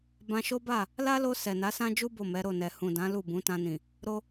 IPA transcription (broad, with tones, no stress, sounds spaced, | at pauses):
b ã˧ ʃ o˦ b a˦˨ | l a˦ l o˧ s ɛ˨ n a˨˦ s ã˦ d͡ʒ u˦ b o˦˨ m ɛ˨˦ ɾ o˦˨ n ɛ˨ h ũ˨ d ã˨˦ l u˦˨ b ũ˨˦ t ã˧ n ĩ˨ | ɾ o˧